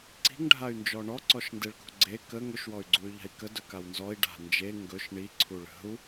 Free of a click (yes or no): no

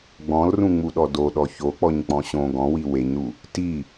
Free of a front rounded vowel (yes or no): yes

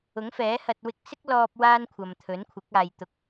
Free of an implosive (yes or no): yes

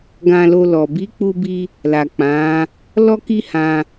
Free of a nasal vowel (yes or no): no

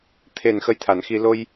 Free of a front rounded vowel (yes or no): yes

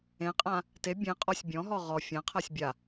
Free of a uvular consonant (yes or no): no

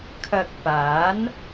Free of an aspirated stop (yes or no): no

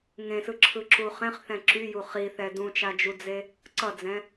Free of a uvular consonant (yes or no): no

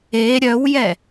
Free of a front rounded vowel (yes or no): no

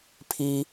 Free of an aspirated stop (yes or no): no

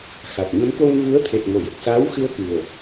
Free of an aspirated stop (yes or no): no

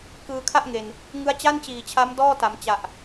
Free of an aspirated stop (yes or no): no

